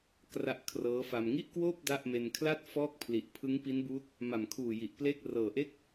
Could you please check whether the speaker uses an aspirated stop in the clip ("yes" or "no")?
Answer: yes